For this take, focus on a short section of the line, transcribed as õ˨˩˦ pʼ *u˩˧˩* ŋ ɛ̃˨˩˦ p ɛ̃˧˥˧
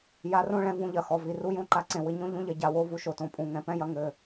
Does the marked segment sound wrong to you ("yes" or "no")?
yes